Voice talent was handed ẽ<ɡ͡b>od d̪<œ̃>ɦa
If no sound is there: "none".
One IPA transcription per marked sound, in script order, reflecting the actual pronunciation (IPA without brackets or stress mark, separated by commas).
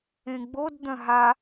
ɡ͡b, œ̃